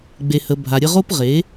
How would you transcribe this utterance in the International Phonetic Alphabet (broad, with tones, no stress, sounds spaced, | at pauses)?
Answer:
ɡ͡b e˨ h ə˨ bʱ a˨ ɾʲ ə˦ ʁ o˦ p ʁ e˨˦